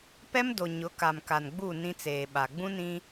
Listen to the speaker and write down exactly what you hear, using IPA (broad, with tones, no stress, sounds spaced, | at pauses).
p ɛ˦ m d o˨ ɲ ʊ˨˦ k a˨ m k a˨ n ɡ͡b u˦˨ n ĩ˦ t͡s eː˨ ɓ a˨ ɡ͡b ũ˦ n ĩ˦